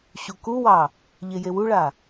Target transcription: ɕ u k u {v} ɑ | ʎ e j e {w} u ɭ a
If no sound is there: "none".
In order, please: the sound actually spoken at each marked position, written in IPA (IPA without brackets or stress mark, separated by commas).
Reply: w, w